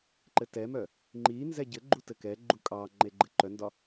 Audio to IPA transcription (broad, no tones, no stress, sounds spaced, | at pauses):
ǃ ɘ t ɛ m œ | ŋ͡ǃ i n z ɛ ɟ ɘ ɡ͡ǃ u t ɘ k ɛ ɡ͡ǃ u kʼ ɑ ŋ͡ǃ e ɡ͡ǃ ɘ ǃ œ n d ɒ